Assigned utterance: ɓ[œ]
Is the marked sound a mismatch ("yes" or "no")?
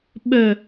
no